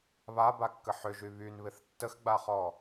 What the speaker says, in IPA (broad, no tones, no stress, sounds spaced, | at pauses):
β a b a kː ə ħ ʏ ʒ y β y n β ɪ θ tː ə x ɡ͡b a χ ɔ